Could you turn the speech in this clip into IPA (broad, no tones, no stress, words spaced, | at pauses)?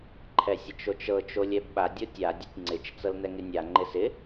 ǃʰɛsʲət͡ʃot͡ʃɤ t͡ʃolʲɛbɓa dʲotʲa dʲətʲŋ͡ǀɪt͡ʃ t͡sɤlnɛŋɪnʲa ŋ͡ǃɪsɪ